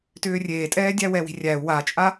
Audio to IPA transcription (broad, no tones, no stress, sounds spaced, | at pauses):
t ʏː rʲ eː tʼ ɛː dʲ æ w ɛ w i̤ rʲ æ u̯ w a t͡ʃʼ a